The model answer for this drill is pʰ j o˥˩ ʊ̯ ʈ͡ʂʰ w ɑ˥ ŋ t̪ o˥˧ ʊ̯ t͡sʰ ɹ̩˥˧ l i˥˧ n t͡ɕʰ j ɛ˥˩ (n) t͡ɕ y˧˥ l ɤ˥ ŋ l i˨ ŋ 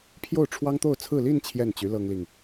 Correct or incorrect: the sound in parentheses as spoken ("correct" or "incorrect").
correct